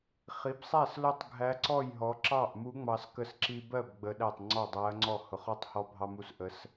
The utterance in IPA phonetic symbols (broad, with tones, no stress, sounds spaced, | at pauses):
χ i˩˧ b sˤ æ˥˩ s l ʊ˥˩ tˤ ɡʱ æ˧˥ ǀ ɔ˥˩ j ɦ ɔ˩˧ ǁ ɑ˥˩ ʔ m u˧˥ ŋ͡m ɑ˧ s k ə˧˥ s ǁ i˧ b ɜ˥˩ b ɡ͡b ə˧˥ ɗ æ˥˩ tˤ ŋ͡ǀ ɔ˥˩ dˤ æ˧˥ ɐ̯ ŋ͡ǀ ɔ˥˩ h ʊ˩˧ χ ɔ˧˥ tˤ h ɔ˧ bʱ ɑ˧ m u˧ s ʔ ə˧˥ s